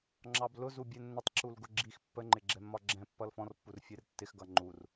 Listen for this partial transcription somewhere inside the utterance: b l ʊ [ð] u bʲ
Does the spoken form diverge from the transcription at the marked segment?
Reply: yes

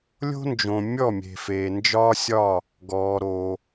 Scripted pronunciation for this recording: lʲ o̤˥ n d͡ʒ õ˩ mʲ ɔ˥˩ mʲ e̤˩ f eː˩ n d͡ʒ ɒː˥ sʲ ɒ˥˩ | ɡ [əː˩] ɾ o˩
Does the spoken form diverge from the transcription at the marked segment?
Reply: yes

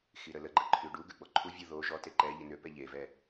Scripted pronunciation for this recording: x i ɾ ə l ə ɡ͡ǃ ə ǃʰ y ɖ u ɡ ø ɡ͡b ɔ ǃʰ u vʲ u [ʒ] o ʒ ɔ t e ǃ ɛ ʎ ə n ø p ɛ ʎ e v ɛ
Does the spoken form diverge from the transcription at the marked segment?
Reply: yes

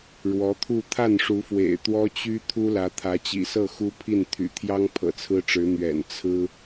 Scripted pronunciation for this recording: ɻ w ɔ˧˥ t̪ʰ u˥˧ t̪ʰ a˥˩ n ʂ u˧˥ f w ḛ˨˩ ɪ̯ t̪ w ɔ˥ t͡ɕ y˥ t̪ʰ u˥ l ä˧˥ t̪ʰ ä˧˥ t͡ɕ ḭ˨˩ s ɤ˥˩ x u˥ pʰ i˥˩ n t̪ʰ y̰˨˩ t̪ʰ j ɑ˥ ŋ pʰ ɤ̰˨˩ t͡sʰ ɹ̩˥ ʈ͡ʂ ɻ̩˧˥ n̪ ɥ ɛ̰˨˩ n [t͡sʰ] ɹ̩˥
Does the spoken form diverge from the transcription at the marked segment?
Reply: no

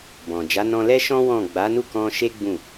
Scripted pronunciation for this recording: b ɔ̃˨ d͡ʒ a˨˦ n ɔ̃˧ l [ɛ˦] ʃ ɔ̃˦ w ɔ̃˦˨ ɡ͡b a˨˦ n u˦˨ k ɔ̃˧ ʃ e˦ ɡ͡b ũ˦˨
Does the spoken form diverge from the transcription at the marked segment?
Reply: no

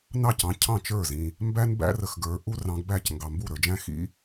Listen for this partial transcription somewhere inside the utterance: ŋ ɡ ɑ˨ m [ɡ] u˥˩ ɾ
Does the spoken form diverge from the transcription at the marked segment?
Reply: yes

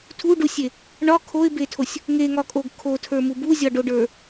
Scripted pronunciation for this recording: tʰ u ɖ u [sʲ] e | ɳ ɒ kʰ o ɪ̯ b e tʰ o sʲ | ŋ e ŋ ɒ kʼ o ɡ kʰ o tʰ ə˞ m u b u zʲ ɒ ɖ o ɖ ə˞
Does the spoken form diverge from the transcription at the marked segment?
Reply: no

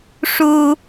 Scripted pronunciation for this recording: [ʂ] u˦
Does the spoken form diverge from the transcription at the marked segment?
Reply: no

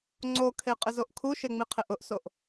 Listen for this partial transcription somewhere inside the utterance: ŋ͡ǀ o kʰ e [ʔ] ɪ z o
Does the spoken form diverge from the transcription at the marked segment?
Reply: yes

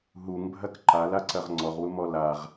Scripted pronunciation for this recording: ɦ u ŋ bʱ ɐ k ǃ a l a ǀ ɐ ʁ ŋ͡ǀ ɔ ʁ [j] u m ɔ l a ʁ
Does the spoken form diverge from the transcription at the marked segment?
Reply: yes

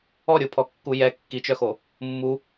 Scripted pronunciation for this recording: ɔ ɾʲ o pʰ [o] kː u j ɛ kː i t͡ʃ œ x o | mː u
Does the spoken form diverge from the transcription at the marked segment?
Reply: yes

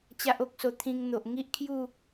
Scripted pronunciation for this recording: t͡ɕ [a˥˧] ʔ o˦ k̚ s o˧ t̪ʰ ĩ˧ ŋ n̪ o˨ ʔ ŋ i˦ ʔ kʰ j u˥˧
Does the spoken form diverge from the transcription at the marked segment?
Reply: yes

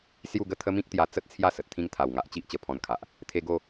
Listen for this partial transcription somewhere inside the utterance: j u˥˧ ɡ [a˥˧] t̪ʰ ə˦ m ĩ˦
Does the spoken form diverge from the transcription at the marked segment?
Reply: yes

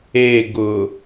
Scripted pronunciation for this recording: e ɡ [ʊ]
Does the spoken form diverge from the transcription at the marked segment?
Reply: no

